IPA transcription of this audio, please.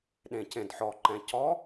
ɗ ẽ c ẽ d ħ ɔ ǃ ɛ̃ c ɔ

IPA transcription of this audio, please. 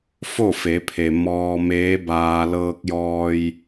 f o˥˨ f e˩˧ pʰ e˩ m ɔː˧ m eː˧˥ b aː˧ l ɤː˧ k̚ j ɔː˧ j

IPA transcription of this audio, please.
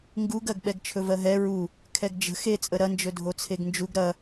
ŋ ɡ u ɡ ɜ ɡ ɓ ɛ ɡ t͡ʃʰ ɵ v ɜ ɦ ɛ ɹ u | kʰ ɛ ɡ d͡ʒ ə̤ x e t͡sʼ ə ɾ ɐ n d͡ʒ ɵ dʱ o t͡sʰ e ɡ n d͡ʒ u ɡ ɾ ɐ

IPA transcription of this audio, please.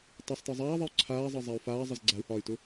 tˤ e sˤ t ɤ zˤ aː ðˤ e u̯ ǀʰ aː zˤ ɤ zˤ a y̯ f aː zˤ ə z ɡ͡ǀ a u̯ h ɒː y̯ t ʊ

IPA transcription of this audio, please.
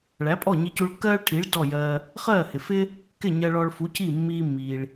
ɭ æ˩˥ pʼ ɔ˥˩ ɲ i˧ c u˧ ɭ kː ɜː˥ ɭ ʈʰ i˩˥ ɭ d ɔ˥˩ j ɜː˧ | χ ɜː˥˩ h ɪ˩ f ɪ˥ | k ɪ˥˩ ɲ ɜ˧ ɭ ɔ˧ ɭ f u˩˥ c i˥˩ mː iː˧ mː iː˩ ɭ

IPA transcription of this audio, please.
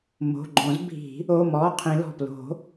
m o̤˩˧˩ ɡ͡ǃ õ˨˩˦ z bʱ i̤˨˩˦ | o˩˧˩ m ɔ˩˧˩ qʰ ĩ˨˩˦ l ɔ̤˩˧˩ p l o̤˨˩˦

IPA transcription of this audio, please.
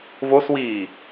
v o s w iː

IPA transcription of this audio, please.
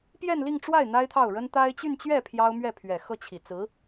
p j ɛ˥˧ n l i˥˧ ŋ ʈ͡ʂ w a˥˩ ɪ̯ n̪ a˥ ɪ̯ t̪ʰ ɑ˥˩ ʊ̯ ɻ ə˥ n t̪ a˥ ɪ̯ t͡ɕ y˥˧ n t͡ɕ ɥ ɛ˥˩ pʰ j ɑ˥ ʊ̯ m ɥ ɛ˥˩ pʰ ɥ ɛ˨˩ x ɤ˥˩ t͡ɕʰ i˨˩ t͡s ɹ̩˧˥

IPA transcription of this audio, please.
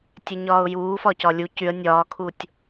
tʲ ɛ ɲ ɒː ʊ̯ j uː f ɒ c ɒ lʲ u c y ə̯ nʲ ɒː kʰ u tʲ

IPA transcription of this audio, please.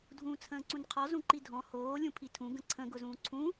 dʱ ũː t͡sʰ ə̃ː ǀ ũ n qʰ ɔ z ũ ǃ i dʱ ɔ̃ h oː lʲ ũ pʰ i tʰ ũ ɡ ə̃ ǀʰ ə̃ ɡ ʊ z ũː ǀʰ ũ

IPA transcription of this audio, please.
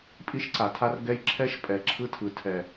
pʼ i˦ ʃ ǀ a˨ tʰ a˦ r ɡ ɛ˦ j ǁʰ ɛ˦ ʃ pʼ ɛ˨ ǁʰ ɯ˦ tʰ ɯ˨ tʰ ɛ˨

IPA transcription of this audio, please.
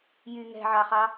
j y ŋ ɛ̤ ʕ ɑ χ ɑ

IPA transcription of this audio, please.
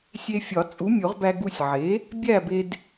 sʲ e˧ fʲ ɒ˨˩˦ t͡sʼ u˩˥ mʲ o˨˩˦ ʁ b æ˧ ɡ u˧ sʲ ʕ e˩˥ | bʲ æ˥˨ b e˧ d

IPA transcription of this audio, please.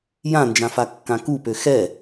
j ã n d͡ʒ ã f a kː ã k u p ø x ɛ

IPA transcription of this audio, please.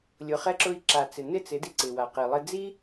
lʲ ʊ˨ χ ɛ˧ ǁ ʊ˧ i̯ ǁ a˨ t͡s ɪ˨ n ɪ˦˨ t͡s ɪ˨˦ d i˧ ǀ ɪ˨ w a˨ q i˨ lˠ ɪ˧ d͡z i˦

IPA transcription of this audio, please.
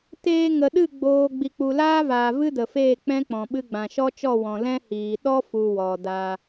t eː˧ ŋ ə˨ ɗ ɨ˦˨ ɡ͡b oː˨ ɡ͡b i˨ k͡p u˨ l aː˦ v aː˨ v ɨ˦ d ə˨ f eː˦˨ k͡p ɛ̃˦ k͡p ɔ̃˨ ɓ ɨ˧ ɡ͡b ã˨ ʃ ɔ˦ t͡ʃ ɔ˦˨ w ɔ̃˨ l ɛ̃˦ h iː˨ ɗ ɔ˦ f u˨ w ɔ˨ d a˧

